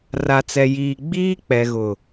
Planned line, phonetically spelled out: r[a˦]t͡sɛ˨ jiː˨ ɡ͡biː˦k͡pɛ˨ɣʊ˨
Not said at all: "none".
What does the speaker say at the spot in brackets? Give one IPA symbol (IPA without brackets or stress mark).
a˨